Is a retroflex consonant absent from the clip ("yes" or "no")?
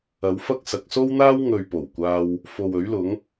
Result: yes